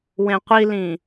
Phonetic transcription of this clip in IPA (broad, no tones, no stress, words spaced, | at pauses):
wẽqʷilĩ